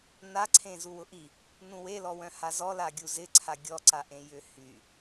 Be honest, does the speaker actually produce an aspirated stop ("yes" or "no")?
yes